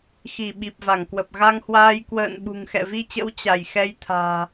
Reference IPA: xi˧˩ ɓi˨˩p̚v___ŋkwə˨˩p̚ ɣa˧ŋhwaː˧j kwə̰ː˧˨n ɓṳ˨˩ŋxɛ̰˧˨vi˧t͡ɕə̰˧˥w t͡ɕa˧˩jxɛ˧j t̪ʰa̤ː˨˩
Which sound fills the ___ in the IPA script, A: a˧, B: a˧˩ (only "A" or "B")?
B